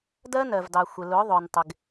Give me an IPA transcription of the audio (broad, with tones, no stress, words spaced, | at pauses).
dɜ˦nɜ˨vdɑ˨xʷɪ˨ lʊ˨˦ðˤʊ˨n tˤɪ˨ɡ